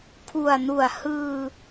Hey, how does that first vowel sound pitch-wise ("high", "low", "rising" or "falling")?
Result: low